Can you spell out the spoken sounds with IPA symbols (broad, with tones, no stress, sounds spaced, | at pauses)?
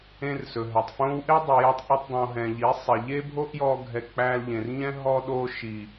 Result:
ẽ˧ r s ɵ˨ ɦ ɛ˨ tˤ f õ˦ w ʔ e˦ dˤ i˨ j ɔ˧ tˤ ʔ ɵ˧ tˤ dˤ õ˨ ɦ ɛ̃˨ ʎ i˨˦ sˤ e˨ ʎ e˦ bʱ o˦ ʔ j ɔ˧ ɡʱ ɛ˧ k͡p æ˧ l ʎ ẽ˨ r ɲ ɛ̃˦ ɦ ɔ˦ ɗ o˦ ʃ i˨